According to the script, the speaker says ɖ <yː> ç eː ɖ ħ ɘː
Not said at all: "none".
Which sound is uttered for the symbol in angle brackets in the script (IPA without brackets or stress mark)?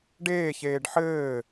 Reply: eː